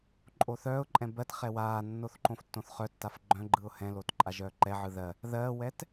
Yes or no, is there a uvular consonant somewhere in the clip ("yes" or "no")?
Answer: yes